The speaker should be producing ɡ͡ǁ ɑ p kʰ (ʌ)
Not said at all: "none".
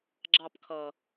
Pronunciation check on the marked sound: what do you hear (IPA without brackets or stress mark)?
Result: ʌ